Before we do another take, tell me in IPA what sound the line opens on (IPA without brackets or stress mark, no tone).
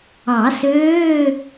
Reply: ɑ